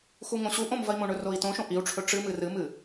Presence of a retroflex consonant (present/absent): present